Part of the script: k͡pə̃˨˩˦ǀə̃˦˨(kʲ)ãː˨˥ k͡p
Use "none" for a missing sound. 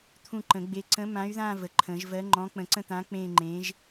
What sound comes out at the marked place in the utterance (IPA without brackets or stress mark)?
t̪